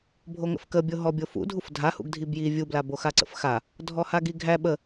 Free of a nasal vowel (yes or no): yes